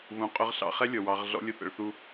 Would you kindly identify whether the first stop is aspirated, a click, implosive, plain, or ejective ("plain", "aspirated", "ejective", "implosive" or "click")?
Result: ejective